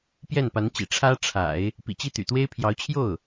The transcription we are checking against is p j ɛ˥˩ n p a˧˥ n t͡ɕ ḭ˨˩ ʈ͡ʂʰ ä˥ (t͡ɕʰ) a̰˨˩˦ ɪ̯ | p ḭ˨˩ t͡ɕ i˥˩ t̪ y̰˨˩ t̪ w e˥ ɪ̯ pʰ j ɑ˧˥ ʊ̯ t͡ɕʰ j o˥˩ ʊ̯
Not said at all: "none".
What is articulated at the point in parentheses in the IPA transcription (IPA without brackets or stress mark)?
ʈ͡ʂʰ